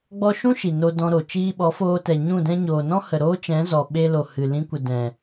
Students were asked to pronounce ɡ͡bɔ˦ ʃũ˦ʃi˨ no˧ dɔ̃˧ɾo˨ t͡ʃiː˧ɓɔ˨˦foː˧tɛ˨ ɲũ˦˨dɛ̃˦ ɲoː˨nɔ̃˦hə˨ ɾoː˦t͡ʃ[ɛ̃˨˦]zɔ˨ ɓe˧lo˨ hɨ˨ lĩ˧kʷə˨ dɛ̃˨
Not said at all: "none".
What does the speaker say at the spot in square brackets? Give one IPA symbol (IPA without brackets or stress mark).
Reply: ɛ̃˨˦